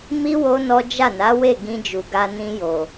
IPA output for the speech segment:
m i˦ w o˦ n ɔ˦ d͡ʒ a˦˨ n a˨˦ w e˦˨ ɡ ĩ˧ d͡ʒ u˨ ɡ a˧ n ĩ˧ j o˨

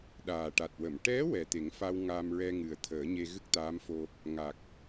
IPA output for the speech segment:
ɗ aː˨˩ ʈ a˨˩ t̚ w ə˨˩˨ m ʈ ɛ˧˥ w ɛ˨˩ t̪ e˨˩˦ ŋ f a˧ w ŋ a˧ m ɹ ɛ˧ ŋ ɨ˨˩ ə̯ t̪ʰ əː˨˩˦ ɲ e˧ ɣ ɨ˦˥ k̚ t̪ aː˧˥ m f o˧ | ŋ a˨˩ k̚

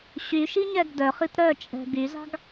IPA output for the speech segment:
ɕ y ʃ i ɲ ɛ ɡ d œ χ i t ɾ œ t͡ʃʼ ɛ̤ ɡ y z ɑ̤ ɡ

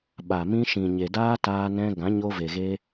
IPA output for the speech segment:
ɓ a˨ m ĩ˧ ʃ ĩ˨ ɲ e˨ d aː˦ t aː˧ n ɛ̃˧ ɡ ã˨˦ ɲ o˧ v e˨ ɣ eː˧

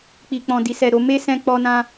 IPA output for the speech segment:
k͡p i˨ k͡p ɔ̃˨ d i˨ s ɛ˨ ɾ o˧ m e˦ s ɛ̃˧ k͡p ɔ˧ n ã˧

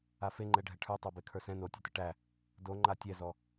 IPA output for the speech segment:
a f e ŋ͡ǃ ɛ ɖʱ ɛ ʈʰ ə˞ tˤ a b e kʰ ə˞ s ɛ̃ n o tʲ ɛ t ɘ ʈ æ | d o ŋ͡ǃ a tʲ ɛ z ɔ

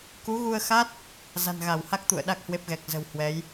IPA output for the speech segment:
k u˨˦ ɣ u˧ ə̯ x a˦˥ t̚ | z a̤˨˩ n ɣ a˧˩ w h a˦˥ k̚ t̪ ṵ˧˨ ə̯ ɗ a˦˥ k̚ h w e˦˥ p̚ ɣ ɛ˨˩ k̚ z ə̤˨˩ w h w ɛ˨˦ j

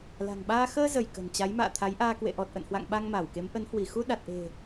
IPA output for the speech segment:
l a̤˨˩ ŋ ɓ aː˧ x əː˧ z ə˧˩ j k ə̤˨˩ n t͡ɕ a˨˦ j m a̰ː˧˨ t̪ʰ a˨˦ j ʔ aː˧ k w ḛ˧˨ ʔ ɔ˨˩ t̚ ʔ ə̰˧˨ n h w a̰˧˨ ŋ ɓ a˧ ŋ m aː˧˩ w k e˨˦ m ʔ ə˨˦ n h w i˧˩ x u˧ ɗ a˨˩ t̚ ʔ e̤˨˩

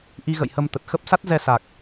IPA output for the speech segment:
ʔ i˧ ɣ ə̰˧˨ j h ə˧ m t̪ ə˨˩ t̚ x ə˦˥ p̚ s a˦˥ t̚ z ɛ˧ s a˨˩ k̚

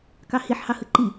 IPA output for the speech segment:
k ɑ h i ħ h ɑ h ɯ ǃ i

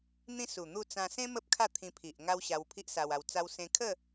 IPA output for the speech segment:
n̪ ĩ˦ s u˨˩ n̪ u˥˧ t͡s ã˧ s ẽ˦ m ə˦ p̚ kʰ a˥˧ t̪ʰ ĩ˧ pʰ i˨ ʔ ŋ a˦ w ɕ a˧ w pʰ i˦ ʔ s a˧ w a˧ w t͡s a˦ w s ẽ˧ kʰ ə˥˧

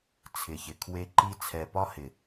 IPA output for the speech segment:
t͡sʰ ɪ˨ ç ɪ˨ kʰ w e˦ ǃ i˦ t͡sʰ ɛ˨ p ɒ˦ h ɪ˨

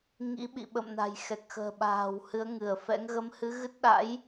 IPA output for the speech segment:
ŋ ḭ˧˥ ɓ ḭ˧˨ ɓ ə̰˧˨ m n a̤˨˩ j x ɛ˨˩ k̚ x ə̤ː˨˩ ɓ a̤ː˨˩ w h ɨ˨˦ ə̯ ŋ ɨ˧˩ ə̯ f ɛ̰˧˥ ŋ ɣ ə˨˦ m h ɨ˨˦ ɣ ɨ˦˥ t̚ ɗ a̰˧˥ j

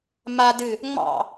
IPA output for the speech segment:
m a d ɨ | ŋ͡m ɑ̰

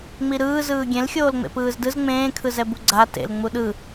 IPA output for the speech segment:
ŋ͡m i ɾ ɯː z ɯː ɡʲ ẽ l xʲ oː l ŋ͡m ḛ p ɯː z d ɯ z ŋ͡m ẽː kʰ ɯ z ɛ b u ɡ͡ǀ a t ḛ l ŋ͡m u ɗ ɯ

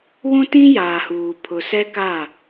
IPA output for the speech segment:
w ũ˦ t ĩ˦ j aː˨ h uː˨ pʰ ʊ˨ s ɛ˦ k a˦˨

